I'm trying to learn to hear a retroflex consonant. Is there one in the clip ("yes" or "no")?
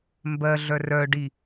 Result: yes